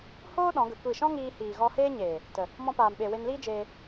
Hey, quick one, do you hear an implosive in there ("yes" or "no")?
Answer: yes